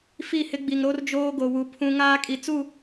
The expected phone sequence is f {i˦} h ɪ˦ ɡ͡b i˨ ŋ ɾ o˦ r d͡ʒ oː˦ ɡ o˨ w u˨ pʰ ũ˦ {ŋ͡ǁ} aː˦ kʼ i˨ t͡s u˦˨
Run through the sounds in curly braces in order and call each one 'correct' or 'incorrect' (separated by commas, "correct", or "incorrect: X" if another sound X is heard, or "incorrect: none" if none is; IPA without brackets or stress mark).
incorrect: i˦˨, incorrect: ŋ